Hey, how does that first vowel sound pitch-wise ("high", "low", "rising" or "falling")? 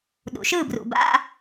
low